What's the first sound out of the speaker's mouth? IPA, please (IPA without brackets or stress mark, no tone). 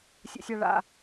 sʲ